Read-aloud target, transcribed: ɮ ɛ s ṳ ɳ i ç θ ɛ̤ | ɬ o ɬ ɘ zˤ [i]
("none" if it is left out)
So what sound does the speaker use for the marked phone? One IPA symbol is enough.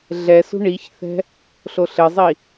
i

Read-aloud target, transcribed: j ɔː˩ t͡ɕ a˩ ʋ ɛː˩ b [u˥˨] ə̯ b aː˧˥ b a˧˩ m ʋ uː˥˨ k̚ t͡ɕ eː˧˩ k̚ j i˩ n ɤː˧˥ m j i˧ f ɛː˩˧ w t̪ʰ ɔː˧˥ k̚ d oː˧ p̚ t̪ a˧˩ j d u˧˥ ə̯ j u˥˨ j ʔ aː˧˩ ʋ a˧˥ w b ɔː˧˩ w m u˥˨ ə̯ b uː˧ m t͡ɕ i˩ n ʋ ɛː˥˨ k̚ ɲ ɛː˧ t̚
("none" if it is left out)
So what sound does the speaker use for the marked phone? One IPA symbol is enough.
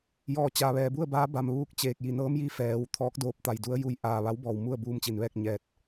u˥˨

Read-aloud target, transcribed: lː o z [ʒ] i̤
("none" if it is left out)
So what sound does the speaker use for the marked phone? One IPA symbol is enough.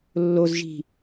ʒ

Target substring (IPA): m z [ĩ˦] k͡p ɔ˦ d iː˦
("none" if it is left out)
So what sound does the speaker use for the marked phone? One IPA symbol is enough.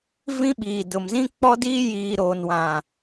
ĩ˦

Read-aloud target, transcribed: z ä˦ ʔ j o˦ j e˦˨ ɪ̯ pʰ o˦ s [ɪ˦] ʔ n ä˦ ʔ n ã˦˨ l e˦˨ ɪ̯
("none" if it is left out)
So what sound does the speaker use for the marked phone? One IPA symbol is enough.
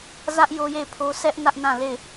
ɛ˦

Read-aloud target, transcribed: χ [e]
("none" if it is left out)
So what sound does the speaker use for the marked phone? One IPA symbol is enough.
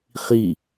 i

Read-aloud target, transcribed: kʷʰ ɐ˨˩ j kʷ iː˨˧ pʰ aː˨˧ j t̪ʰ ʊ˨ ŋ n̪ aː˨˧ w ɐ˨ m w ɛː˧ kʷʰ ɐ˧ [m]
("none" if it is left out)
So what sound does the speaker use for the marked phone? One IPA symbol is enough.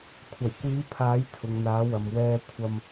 m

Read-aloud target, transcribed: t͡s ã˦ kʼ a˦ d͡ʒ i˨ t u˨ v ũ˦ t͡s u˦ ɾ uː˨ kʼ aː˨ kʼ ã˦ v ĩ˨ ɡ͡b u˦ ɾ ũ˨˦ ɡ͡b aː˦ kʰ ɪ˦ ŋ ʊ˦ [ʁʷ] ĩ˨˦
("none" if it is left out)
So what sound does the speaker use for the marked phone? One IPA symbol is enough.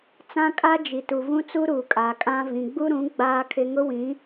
w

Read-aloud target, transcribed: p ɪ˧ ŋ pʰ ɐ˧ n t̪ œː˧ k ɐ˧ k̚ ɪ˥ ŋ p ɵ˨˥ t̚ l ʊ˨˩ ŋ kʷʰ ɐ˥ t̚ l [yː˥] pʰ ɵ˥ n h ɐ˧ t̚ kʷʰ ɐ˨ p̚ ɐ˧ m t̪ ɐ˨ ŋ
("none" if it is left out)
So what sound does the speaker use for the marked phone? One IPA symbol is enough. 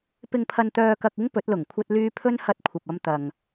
yː˥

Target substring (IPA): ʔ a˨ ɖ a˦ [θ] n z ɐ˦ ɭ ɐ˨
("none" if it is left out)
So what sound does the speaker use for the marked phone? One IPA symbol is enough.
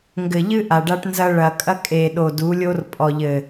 ʈ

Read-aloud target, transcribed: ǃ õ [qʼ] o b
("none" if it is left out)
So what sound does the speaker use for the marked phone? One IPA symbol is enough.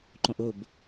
ʔ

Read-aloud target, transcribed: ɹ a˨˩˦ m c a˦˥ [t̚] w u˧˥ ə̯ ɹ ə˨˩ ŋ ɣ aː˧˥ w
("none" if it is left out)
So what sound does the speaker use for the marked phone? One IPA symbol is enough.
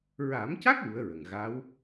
k̚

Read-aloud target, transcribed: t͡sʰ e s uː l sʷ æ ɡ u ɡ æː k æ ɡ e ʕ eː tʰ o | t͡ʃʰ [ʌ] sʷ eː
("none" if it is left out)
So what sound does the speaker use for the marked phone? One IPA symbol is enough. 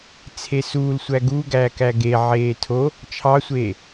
ɑ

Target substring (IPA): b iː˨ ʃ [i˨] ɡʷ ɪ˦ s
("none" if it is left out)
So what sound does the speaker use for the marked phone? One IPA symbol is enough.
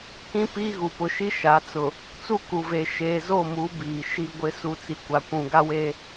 i˦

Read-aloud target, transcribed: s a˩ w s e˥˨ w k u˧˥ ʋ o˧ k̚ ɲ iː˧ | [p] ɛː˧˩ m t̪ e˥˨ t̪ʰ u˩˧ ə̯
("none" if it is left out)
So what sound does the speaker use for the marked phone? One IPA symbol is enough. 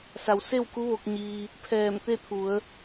pʰ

